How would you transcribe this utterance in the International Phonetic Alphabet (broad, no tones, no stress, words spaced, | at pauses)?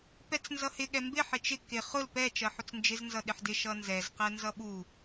pɛt͡snzʌhɪ ɠɛmbɪ ħɪt͡ʃɪ kɪ χʊl pɛ t͡ʃɜħʊt͡snd͡ʒɪz nzʌɗɪħdɪ ʃʌnzɛz qɛnzʌɓu